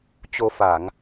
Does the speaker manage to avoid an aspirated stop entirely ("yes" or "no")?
yes